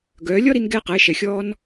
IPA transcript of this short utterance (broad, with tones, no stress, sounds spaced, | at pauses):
ɡ œː˩˧ lʲ ɔ˥ ɾ i˧ n ɡ ɛː˧ q ɘː˩˧ ʃ ɛ˩ xʲ ɔː˧ n